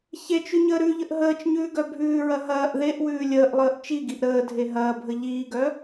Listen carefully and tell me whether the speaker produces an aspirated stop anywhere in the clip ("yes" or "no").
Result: no